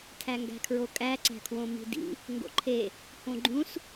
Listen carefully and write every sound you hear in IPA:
tʰ æ ŋ ɡ æ̤ kʰ ɹ o kʼ æ ǀ æ̤ kʰ w õ m i̤ d ḭ | ŋ ɡ o̰ ǃʰ e | h õ ɡ͡ǃ ũ s

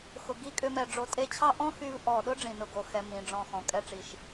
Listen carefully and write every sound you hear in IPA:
x ʊ˨ ɡ i˧ kʼ ʏ˧ m ɛ˨ ɖ͡ʐ o˨ tʼ e˧ t͡ɕʰ ɑ˦ ʔ ɔ̃˦ x y˧ v ʔ ɔ˨ ɗ ʊ˦ ɖ͡ʐ ĩ˨ n ʊ˨ ɡ o˨ x ɛ˨ m ĩ˨˦ ɖ͡ʐ ɔ̃˧ x ɔ̃˨ kʼ ɛ˦ ʈ͡ʂ i˨ ʃ

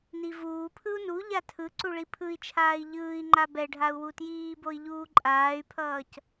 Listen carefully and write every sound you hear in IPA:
n i v uː pʰ ɯ u̯ n u ʎ a tʰ ɯ ǀ u ɭ i pʰ ɯ i̯ t͡ʃʰ aː i̯ ʎ ɯː i̯ ŋ͡ǃ a b ɛ ɖʱ a u̯ w u t j iː b o i̯ ʎ uː ǃʼ aː y̯ pʰ ʌː c

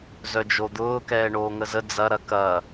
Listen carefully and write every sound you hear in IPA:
z œ d͡ʒ o d̪ ʊː k ɛː ɳ oː ŋ ə z ə d͡z ɐ ɾ ɐ k ɐ

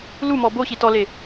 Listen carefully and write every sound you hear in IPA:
l u m ɔ b o ɕ i t ɔ l e

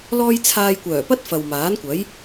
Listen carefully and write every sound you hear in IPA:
l ɔː˥ j t͡sʰ aː˧ j kʷ œː˨˩ p ɐ˥ t̚ f ɐ˨ w m aː˨˥ n kʷ ɐ˨˥ j

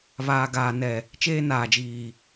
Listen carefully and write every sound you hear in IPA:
β aː˨ ɡ aː˨ n ɛ˨ | t͡ʃ eː˦ n aː˨ d͡ʒ iː˨

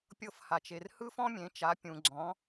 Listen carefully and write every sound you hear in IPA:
pʲ ɤ˦˨ f h a˨ t͡ʃ e˨ r h ɯ˥ f ɔ̃˥ mʲ ẽ˨˥ t͡ʃ a˨˥ pʲ ũ˨ ɡ͡ǀ ɔ̃˨˥

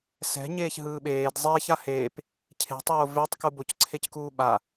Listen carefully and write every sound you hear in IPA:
s ɛ̤ ɲ eː ç ɦ ɯː ɓ eː d zˤ eː ç a h eː p | cʰ e̤ tˤ oː v e tˤ k u b o c ǀʰ e c k uː ɓ a

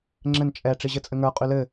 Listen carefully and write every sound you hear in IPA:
ŋ͡ǁ ɘ n t͡ʃʼ ɛ ʈ͡ʂ i ʑ ɘ t͡sʼ ɘ ŋ ə˞ qʼ y l ɘ

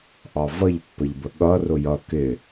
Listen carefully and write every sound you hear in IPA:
ʔ ɑ v ʌ ʎ pː ə ʎ b ə ɠ ʌ r ʊ j ʌ k ɪ

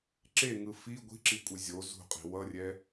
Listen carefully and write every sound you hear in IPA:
ǁ e ŋ ɯ f i ɡʷ i̤ ǁ i kʷʼ e zʲ o z ṳ qʼ i̤ w ʌ rʲ ɛ

